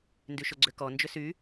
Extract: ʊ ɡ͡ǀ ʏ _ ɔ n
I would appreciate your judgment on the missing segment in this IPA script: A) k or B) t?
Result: A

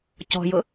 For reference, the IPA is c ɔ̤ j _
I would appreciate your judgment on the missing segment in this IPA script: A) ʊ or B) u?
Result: A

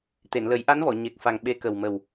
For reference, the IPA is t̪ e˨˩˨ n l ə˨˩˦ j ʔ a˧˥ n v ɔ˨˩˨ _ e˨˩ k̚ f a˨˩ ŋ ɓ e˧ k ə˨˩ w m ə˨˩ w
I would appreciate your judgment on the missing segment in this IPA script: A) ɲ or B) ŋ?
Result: A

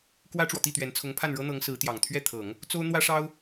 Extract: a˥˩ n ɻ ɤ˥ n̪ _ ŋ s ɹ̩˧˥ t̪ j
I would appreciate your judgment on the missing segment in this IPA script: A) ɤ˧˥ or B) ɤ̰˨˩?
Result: A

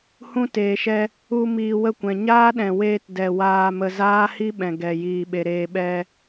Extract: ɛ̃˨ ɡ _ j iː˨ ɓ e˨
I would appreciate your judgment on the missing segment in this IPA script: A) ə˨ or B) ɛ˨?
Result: B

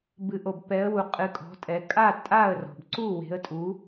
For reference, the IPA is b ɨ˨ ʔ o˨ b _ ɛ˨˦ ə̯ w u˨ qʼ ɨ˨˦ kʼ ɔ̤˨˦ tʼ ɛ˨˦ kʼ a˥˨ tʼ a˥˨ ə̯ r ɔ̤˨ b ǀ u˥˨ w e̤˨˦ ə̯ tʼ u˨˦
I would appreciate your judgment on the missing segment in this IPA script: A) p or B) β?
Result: A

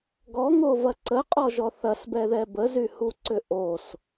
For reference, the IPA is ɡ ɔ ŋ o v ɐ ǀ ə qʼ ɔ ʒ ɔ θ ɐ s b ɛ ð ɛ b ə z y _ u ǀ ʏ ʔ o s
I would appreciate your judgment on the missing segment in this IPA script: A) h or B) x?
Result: A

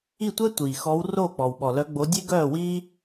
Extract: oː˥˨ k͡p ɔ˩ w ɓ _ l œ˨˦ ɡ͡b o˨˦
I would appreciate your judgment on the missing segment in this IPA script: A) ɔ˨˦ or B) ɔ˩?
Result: B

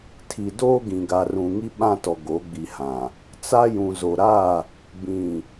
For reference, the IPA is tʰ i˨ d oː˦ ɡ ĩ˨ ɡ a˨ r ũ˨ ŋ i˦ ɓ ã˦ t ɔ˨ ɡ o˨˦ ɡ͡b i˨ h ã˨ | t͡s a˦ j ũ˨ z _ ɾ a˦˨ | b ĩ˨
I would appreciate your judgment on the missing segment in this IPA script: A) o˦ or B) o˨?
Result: B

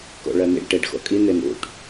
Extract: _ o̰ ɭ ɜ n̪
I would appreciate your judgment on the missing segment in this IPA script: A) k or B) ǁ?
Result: A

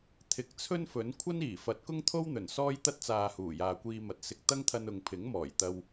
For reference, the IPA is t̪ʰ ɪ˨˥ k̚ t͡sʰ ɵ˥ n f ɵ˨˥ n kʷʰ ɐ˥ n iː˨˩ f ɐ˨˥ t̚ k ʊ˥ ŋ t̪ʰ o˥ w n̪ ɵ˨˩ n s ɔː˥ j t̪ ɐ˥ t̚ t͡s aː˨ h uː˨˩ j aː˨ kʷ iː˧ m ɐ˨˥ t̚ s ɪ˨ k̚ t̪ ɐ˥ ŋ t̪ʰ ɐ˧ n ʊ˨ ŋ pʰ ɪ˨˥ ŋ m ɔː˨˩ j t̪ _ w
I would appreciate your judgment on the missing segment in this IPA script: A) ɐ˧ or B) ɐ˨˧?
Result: A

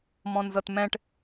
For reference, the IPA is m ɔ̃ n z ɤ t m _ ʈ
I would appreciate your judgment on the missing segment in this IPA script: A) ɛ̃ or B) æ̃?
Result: A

